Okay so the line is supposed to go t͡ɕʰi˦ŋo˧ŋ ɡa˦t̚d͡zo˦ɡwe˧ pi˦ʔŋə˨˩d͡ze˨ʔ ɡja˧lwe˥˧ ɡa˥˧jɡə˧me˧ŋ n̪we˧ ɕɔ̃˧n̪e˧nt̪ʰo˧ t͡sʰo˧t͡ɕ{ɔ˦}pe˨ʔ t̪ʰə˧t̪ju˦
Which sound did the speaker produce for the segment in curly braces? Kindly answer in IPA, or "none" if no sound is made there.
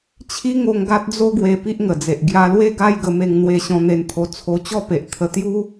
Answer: ɔ˥˧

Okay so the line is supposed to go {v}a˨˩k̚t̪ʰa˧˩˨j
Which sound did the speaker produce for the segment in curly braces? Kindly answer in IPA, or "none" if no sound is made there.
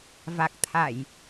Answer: v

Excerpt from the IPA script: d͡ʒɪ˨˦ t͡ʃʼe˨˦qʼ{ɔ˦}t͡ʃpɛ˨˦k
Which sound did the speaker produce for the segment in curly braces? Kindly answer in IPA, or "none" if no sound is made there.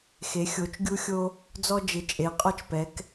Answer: ɔ˦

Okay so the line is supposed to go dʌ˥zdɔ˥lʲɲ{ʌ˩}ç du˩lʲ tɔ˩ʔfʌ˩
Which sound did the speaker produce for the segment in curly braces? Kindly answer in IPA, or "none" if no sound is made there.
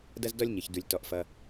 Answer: ə˩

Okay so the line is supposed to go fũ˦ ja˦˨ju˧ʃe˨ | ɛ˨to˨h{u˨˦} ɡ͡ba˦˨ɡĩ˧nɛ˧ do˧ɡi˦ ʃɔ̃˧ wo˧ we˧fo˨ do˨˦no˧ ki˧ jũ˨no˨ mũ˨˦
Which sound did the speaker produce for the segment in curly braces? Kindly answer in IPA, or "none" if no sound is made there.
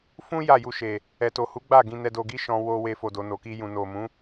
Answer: u˨˦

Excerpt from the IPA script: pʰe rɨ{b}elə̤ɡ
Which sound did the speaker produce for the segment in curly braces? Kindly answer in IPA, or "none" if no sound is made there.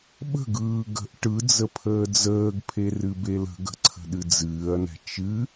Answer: b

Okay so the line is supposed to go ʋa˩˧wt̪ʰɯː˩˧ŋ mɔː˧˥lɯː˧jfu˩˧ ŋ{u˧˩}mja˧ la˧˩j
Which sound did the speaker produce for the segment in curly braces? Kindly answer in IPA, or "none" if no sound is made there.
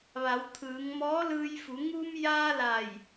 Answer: u˧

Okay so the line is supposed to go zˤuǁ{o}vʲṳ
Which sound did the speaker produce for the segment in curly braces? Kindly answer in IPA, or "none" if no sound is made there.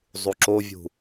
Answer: o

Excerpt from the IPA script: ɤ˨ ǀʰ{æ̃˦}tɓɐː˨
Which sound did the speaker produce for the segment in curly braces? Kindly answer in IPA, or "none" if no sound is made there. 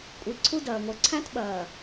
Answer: æ̃˦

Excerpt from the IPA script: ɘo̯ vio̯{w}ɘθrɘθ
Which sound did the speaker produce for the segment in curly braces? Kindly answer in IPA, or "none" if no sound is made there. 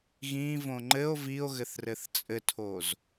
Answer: ɣ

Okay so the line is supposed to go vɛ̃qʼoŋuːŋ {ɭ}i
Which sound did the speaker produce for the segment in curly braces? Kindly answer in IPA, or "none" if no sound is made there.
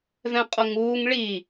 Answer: ɭ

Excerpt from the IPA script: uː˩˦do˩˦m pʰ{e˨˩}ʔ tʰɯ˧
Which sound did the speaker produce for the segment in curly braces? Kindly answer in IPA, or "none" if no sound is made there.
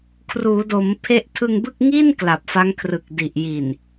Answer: e˥˩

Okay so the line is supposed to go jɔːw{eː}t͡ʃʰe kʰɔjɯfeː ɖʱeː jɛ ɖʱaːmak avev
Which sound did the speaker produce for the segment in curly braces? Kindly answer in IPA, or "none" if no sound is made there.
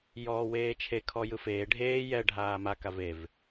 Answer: eː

